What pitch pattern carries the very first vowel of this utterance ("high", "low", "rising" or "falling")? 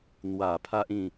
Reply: low